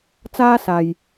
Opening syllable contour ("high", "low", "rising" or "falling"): high